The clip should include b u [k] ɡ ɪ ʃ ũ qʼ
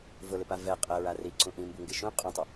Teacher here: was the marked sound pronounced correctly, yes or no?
no